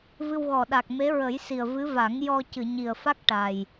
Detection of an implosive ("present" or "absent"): present